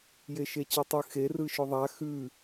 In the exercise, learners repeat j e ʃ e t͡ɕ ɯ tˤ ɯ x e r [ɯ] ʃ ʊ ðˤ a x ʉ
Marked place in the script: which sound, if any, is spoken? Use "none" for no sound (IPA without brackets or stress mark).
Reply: ɯ